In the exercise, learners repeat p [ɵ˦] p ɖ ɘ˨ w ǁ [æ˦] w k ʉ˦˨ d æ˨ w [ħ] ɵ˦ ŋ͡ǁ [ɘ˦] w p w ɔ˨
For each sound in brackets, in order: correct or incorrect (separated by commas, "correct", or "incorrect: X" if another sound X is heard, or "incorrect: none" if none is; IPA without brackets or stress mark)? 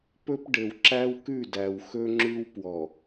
correct, correct, incorrect: x, incorrect: ʉ˦